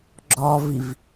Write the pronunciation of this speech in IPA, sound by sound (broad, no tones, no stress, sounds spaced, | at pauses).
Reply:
ɡ͡ǁ ɔ v i v